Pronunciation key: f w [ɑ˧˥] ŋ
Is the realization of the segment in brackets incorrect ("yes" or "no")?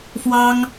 yes